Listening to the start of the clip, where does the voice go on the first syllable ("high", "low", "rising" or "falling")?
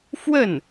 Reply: falling